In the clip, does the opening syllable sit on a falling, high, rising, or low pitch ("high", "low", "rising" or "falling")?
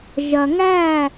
low